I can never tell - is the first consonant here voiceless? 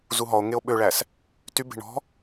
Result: no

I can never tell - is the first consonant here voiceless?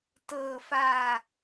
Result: yes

